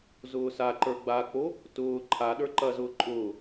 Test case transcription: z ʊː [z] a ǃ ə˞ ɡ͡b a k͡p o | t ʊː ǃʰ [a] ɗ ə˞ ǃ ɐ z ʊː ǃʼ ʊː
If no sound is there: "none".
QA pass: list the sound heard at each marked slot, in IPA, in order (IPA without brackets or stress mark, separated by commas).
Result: s, a